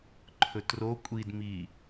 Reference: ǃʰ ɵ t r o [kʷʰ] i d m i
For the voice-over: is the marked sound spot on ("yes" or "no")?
no